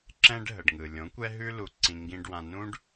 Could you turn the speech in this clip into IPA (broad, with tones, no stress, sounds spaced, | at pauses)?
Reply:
ǁ ɛ̃˦ ɖ ɦ ə˨ ɖ ŋ ɯ˨ lʲ õ˨˦ kʷ ɛ˦ ɦ ʉ˦ l u˧ ǀ ĩ˧ ŋ ɡ ĩ˧ ɖ w ã˧ n ũ˦ ɖ